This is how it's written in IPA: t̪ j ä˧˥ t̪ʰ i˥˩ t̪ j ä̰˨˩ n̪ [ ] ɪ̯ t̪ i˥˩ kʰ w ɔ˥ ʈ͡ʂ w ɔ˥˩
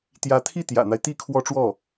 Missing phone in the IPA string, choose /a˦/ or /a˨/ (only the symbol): a˦